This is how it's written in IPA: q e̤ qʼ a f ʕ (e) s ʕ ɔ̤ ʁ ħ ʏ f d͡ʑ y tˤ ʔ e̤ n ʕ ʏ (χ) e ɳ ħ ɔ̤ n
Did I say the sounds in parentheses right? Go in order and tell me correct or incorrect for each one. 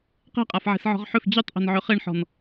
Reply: incorrect: e̤, correct

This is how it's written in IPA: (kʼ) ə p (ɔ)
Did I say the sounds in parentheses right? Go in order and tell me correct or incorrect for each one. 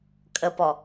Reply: correct, correct

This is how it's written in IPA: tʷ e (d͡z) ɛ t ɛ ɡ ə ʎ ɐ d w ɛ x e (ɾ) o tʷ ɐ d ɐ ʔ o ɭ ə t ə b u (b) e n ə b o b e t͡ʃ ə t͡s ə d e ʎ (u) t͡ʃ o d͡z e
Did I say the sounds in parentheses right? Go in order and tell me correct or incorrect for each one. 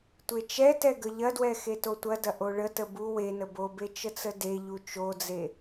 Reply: incorrect: t͡ʃ, incorrect: t, incorrect: w, correct

